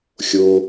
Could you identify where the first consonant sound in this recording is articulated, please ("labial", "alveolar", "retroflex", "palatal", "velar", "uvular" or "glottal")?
velar